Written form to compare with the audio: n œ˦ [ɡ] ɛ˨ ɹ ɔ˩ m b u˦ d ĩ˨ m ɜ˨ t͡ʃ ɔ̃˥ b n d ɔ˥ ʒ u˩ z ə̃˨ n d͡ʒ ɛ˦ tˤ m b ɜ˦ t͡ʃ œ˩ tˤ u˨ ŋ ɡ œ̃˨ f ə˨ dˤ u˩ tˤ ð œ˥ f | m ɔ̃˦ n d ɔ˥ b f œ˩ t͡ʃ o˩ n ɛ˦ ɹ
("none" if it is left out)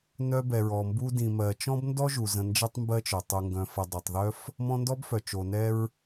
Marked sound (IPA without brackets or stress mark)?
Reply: b